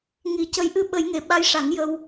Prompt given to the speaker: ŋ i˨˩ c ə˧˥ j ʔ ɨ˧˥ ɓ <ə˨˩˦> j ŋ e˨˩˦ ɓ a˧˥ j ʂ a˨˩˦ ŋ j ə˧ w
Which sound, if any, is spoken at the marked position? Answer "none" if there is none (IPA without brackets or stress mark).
ə˨˩˦